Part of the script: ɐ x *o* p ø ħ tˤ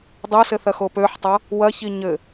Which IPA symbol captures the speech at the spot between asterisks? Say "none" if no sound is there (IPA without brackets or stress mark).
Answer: o